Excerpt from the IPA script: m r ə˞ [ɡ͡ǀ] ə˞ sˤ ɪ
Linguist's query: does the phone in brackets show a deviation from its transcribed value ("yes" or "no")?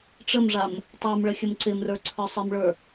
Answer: yes